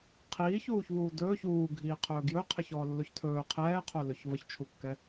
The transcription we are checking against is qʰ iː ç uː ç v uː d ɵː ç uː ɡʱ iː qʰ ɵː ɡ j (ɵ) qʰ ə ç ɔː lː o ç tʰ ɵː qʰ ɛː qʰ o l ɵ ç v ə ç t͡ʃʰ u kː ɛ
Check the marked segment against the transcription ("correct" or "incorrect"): correct